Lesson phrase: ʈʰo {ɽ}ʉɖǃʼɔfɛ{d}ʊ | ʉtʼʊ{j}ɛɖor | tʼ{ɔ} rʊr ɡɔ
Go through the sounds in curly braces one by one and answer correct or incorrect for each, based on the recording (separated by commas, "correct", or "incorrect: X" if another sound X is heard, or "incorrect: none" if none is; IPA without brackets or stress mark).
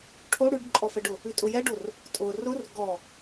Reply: correct, incorrect: ɖ, correct, incorrect: ʊ